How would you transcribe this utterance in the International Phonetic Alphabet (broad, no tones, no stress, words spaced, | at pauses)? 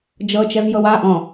d͡ʒɤt͡ʃɛvjɤw aʔɔ̃